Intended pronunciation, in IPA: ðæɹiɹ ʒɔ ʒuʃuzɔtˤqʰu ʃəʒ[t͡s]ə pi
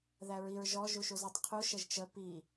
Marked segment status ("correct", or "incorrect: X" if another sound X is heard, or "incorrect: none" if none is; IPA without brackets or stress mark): incorrect: t͡ʃ